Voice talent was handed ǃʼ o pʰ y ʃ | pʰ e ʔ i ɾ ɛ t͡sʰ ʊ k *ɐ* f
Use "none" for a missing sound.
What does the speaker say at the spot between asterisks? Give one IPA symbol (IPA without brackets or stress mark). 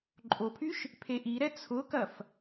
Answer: ɐ